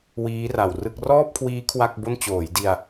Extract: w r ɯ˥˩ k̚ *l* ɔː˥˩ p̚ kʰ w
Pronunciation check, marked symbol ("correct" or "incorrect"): incorrect